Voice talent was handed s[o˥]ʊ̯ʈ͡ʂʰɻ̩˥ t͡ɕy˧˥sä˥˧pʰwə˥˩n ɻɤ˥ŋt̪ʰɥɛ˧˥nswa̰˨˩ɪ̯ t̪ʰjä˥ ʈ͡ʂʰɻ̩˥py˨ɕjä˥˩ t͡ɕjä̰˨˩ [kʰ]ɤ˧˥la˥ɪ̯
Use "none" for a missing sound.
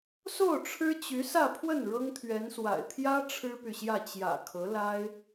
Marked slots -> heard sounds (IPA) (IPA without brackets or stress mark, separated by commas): o˥˩, kʰ